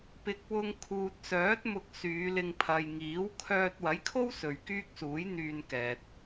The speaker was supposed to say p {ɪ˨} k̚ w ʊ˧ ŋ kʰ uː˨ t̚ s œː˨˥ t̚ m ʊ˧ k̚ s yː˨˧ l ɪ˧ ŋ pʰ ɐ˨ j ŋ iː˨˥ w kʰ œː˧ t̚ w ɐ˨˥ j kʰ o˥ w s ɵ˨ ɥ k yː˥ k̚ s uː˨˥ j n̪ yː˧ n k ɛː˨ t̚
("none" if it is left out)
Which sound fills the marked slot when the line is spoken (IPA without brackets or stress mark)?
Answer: ɪ˨